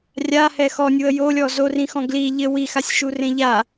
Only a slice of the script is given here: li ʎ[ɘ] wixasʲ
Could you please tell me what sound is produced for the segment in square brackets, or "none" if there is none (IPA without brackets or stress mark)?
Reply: ɘ